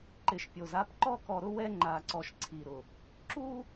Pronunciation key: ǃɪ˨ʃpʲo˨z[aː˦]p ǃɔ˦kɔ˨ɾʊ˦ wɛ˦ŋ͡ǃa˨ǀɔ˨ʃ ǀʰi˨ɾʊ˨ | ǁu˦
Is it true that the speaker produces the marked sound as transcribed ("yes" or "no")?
no